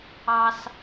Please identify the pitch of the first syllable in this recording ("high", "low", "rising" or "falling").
high